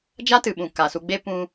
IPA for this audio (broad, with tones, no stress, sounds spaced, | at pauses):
d͡ʒ a˦ t ɨ˨ ɓ ũ˨ k a˨ s u˧ ɡ͡b e˦ p ũ˦